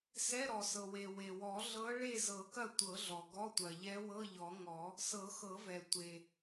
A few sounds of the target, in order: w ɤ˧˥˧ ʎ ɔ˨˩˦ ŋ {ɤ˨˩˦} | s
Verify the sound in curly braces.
incorrect: ɔ˨˩˦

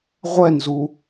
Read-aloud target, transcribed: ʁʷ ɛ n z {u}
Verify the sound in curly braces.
correct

